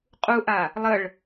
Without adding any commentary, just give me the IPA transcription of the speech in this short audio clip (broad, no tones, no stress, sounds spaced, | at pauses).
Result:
qʼ u ʔ a | lˠ ə ɭ